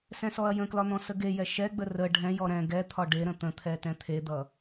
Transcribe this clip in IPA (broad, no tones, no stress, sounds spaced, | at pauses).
s ɛ̃ s ɔ ɐ̯ j ə̃ k l ɒ n̪ ɔ̃ s ə ɡ e j ɛ ʃ ɛ ɡ͡b ə r ə ɖʱ ɛ̃ j ɔ ɾ ɛ̃ ɡ ɛ t̪ʰ ɒ ɖ e ɾ ə̃ t̪ ə̃ t̪ʰ ɛ t ɛ̃ t̪ʰ e d̪ ʌ